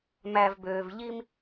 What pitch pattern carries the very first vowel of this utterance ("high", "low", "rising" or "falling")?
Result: low